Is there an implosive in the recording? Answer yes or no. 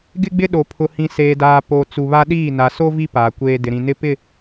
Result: yes